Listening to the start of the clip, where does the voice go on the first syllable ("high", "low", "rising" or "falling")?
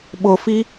low